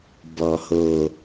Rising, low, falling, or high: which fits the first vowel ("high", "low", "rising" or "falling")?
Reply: low